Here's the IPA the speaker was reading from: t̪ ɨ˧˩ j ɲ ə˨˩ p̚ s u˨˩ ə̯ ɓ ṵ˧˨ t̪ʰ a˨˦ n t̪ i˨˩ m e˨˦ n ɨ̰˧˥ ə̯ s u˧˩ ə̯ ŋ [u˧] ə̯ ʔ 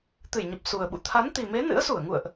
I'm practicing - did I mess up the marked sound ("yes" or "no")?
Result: yes